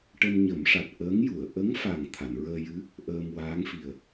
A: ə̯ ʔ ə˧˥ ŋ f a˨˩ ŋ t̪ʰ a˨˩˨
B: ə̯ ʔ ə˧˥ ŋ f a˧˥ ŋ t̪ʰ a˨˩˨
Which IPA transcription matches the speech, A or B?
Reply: A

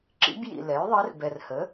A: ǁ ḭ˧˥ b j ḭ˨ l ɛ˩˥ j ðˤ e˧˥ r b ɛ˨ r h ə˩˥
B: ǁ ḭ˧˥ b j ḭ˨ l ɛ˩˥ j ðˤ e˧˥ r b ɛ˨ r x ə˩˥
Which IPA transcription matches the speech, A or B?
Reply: A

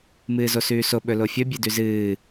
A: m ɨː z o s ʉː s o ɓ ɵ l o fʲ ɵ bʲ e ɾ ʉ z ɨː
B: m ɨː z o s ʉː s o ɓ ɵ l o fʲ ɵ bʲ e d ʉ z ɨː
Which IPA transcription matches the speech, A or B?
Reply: B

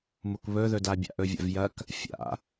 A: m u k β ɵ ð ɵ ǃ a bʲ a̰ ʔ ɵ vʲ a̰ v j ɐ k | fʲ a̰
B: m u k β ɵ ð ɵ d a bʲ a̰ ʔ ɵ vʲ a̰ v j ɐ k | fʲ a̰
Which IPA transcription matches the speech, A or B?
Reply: B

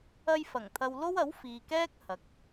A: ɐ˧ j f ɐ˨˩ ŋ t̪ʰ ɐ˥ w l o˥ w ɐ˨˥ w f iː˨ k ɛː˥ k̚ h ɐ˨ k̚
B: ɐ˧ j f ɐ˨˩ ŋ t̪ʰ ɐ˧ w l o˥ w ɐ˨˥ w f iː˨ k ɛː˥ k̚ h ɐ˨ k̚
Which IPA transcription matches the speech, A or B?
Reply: B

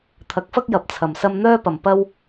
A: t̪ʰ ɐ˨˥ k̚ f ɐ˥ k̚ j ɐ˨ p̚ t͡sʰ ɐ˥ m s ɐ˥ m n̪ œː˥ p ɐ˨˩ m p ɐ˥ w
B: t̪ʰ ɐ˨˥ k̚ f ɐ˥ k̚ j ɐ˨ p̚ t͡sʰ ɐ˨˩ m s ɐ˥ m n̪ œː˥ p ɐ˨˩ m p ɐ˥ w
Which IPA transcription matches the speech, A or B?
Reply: B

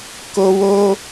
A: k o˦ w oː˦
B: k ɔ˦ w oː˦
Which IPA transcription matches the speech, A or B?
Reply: A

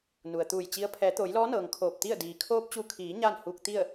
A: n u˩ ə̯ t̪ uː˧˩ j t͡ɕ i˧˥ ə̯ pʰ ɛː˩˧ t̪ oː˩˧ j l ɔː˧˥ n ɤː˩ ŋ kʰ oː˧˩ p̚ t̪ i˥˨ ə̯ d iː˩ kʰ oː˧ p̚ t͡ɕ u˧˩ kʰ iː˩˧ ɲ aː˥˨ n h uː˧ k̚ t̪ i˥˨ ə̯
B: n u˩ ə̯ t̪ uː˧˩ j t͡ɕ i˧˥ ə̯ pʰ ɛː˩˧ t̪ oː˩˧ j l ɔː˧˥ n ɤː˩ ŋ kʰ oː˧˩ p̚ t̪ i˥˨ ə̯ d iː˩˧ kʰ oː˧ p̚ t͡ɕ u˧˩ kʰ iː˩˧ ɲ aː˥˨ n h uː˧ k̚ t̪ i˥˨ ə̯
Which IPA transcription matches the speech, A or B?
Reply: A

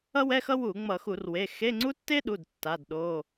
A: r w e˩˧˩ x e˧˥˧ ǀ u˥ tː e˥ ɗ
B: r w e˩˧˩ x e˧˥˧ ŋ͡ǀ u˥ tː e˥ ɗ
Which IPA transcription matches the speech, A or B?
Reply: B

